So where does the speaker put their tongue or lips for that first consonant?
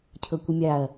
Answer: palate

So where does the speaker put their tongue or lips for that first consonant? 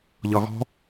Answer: palate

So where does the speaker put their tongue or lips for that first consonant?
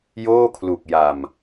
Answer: palate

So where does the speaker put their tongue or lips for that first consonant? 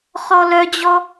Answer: uvula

